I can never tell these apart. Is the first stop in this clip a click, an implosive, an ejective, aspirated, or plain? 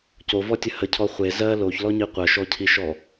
plain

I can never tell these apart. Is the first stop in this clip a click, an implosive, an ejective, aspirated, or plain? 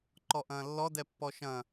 click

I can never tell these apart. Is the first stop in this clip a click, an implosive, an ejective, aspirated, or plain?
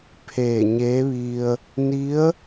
aspirated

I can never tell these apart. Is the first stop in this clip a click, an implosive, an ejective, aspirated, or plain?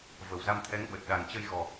aspirated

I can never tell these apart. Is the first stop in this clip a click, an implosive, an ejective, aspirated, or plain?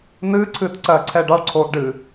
click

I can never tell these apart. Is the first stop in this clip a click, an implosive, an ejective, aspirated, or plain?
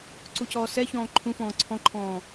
click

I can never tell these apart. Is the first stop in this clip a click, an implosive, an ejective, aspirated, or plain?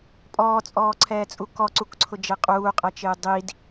ejective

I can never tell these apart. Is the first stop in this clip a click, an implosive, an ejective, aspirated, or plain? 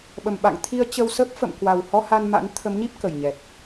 implosive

